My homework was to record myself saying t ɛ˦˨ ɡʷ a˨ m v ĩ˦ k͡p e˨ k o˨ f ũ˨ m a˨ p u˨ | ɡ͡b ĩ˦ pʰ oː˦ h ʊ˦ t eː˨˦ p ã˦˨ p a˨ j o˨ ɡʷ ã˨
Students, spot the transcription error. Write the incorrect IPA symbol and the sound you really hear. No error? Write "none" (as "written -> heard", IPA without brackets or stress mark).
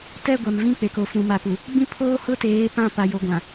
none